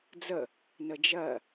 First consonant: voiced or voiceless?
voiced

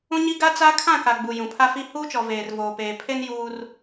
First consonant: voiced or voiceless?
voiced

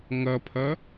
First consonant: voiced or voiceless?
voiced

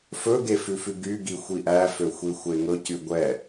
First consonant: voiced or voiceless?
voiceless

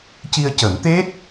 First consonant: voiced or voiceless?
voiceless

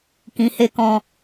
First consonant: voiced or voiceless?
voiceless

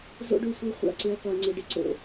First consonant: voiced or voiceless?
voiced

